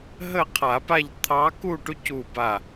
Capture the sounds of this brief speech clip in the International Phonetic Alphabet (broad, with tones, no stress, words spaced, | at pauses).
ɦə˥˨qʰa˨˩˦pa˥˨ʎ t̪ʰɑ˧˥ ku˥˨ʈu˧˥cu˧˩ba˧˩